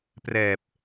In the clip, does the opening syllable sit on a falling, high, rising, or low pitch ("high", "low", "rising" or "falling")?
low